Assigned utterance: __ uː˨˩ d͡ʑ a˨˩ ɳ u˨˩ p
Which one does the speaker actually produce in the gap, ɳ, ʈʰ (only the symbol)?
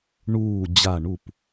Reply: ɳ